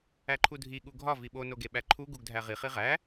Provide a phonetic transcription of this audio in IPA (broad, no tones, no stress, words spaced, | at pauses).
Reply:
æǃʰudʱi ɠuɡʱɒ viɓo noɡeɓæǃʰu ɡuɡdʱæʁi χiʁæ